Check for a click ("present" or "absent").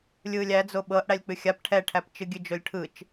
absent